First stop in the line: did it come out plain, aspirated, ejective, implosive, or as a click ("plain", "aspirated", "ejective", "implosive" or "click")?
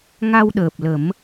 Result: implosive